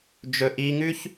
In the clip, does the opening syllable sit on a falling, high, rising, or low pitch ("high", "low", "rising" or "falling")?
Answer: high